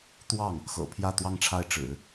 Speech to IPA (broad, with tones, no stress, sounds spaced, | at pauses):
t̪ w ɑ˥˩ ŋ | x ɤ̰˨˩ pʰ j ä˥˧ t̪ w ɑ˥˧ ŋ ʈ͡ʂʰ a˥˩ ɪ̯ ʈ͡ʂ ɻ̩˨˩˦